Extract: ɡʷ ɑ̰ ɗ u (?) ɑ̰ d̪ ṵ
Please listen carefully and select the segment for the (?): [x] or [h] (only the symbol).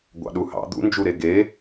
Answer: h